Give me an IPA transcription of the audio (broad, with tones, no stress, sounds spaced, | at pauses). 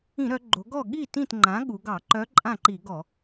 ĩ˧˩˧ ɾ œ˩˧ ɡ͡ǃ o˩˧ ɡ ɔ˥˩ ɠ i˥˩ t ĩ˥˩ t ŋ͡ǃ ã˩˥ ɠ u˩˧ ɡ ɑ˧˩˧ ǃ œ˧˥ ǃʼ ã˥˩ ǃ i˧˩˧ ɡ ɔ˧˩˧